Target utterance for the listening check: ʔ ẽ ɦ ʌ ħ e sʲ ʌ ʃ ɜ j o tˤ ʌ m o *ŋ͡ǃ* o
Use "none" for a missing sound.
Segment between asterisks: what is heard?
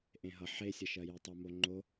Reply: ŋ͡ǃ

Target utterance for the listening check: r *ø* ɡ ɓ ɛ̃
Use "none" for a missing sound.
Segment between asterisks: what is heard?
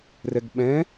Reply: ɛ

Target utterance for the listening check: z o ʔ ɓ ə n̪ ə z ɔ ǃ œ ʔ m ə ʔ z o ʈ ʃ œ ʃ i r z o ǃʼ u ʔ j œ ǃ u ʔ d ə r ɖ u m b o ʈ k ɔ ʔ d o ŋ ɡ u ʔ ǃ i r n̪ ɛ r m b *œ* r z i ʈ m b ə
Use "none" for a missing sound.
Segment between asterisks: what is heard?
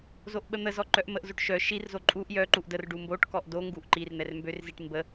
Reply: ø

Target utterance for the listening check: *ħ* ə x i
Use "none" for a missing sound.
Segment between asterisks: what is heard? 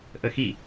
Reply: ʔ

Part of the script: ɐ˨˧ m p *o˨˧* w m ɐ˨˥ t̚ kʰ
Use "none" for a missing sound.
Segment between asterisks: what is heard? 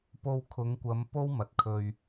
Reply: o˥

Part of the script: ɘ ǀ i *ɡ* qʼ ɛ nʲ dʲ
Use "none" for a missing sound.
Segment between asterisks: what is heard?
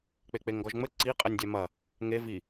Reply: none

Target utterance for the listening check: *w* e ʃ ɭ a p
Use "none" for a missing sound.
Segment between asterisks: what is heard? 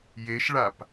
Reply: j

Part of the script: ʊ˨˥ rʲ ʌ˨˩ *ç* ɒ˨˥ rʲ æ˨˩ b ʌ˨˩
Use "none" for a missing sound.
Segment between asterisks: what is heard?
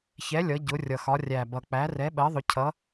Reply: x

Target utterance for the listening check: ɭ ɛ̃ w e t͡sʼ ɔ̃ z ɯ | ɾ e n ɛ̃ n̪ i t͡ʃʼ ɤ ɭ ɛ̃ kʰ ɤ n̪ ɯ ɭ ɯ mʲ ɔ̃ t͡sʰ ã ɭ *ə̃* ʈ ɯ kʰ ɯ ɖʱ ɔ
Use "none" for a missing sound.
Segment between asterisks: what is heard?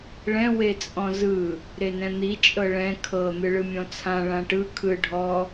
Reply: ã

